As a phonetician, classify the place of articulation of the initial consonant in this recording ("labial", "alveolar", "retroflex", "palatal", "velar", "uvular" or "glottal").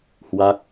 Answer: glottal